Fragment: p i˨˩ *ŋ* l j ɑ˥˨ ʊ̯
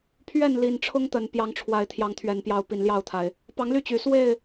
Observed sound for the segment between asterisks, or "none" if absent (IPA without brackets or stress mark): n